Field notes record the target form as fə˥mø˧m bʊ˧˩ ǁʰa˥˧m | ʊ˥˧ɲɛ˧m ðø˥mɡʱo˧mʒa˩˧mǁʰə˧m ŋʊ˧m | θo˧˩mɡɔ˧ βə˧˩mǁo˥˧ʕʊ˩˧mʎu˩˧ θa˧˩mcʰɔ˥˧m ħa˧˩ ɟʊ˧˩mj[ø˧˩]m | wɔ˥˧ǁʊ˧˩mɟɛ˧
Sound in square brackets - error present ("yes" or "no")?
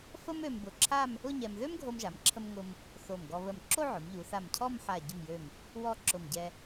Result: no